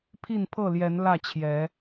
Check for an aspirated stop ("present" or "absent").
present